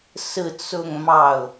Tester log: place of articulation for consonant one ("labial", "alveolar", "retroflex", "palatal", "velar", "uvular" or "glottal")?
alveolar